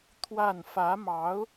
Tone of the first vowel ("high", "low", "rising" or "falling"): falling